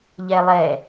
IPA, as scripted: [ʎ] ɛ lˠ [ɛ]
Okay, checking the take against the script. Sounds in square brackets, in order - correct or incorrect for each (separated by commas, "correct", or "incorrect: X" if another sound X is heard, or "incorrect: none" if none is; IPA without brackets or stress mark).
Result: correct, correct